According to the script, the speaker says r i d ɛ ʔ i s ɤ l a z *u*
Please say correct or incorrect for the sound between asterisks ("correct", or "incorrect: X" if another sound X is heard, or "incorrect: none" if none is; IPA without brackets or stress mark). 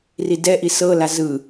incorrect: ɯ